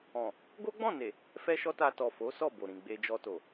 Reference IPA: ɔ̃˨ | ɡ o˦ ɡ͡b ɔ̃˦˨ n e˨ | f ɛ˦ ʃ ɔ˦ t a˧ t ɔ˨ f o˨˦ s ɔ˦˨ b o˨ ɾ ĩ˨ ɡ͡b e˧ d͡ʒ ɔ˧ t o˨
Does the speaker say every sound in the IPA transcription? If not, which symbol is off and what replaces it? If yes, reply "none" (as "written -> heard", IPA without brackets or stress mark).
none